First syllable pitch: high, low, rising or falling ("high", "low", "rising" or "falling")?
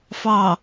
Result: low